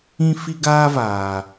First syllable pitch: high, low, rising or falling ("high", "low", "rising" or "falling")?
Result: high